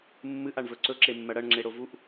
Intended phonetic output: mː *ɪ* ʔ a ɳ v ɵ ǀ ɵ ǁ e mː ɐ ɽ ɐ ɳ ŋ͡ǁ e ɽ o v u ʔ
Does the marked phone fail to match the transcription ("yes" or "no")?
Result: yes